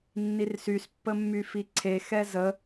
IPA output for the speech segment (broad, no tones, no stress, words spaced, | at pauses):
nːirsys pːəmːyfiǀʰe xɛzə